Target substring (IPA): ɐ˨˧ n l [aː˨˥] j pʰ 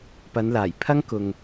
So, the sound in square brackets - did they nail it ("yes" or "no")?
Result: no